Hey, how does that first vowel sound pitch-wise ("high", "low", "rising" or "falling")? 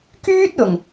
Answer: high